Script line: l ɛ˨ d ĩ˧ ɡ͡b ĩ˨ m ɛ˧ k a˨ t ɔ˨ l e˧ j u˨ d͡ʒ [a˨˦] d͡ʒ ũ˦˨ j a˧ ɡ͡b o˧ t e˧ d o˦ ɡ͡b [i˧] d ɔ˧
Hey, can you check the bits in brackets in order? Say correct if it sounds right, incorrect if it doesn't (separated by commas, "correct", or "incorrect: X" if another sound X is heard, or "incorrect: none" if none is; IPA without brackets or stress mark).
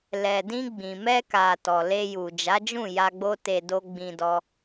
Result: correct, incorrect: ĩ˧